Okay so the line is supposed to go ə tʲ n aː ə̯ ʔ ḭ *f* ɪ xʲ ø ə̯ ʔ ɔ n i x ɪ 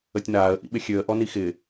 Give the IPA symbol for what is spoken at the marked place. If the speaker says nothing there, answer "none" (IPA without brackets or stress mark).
ɓ